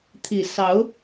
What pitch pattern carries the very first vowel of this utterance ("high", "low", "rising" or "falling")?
low